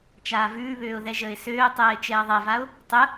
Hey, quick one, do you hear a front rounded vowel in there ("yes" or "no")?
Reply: yes